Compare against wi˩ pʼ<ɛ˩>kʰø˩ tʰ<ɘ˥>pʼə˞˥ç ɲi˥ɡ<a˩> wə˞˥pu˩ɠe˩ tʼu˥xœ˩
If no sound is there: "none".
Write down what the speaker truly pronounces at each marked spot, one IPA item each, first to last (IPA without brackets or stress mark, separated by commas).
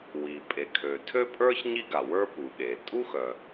e˩, ø˥, a˩